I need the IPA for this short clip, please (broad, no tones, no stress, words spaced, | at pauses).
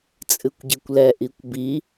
t͡sʼɨkʷɟikʷlɛ ʔikʷbi